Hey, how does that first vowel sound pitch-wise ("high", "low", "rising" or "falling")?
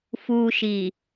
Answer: low